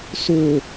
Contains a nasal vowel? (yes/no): no